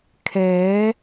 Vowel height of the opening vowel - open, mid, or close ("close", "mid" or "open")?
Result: mid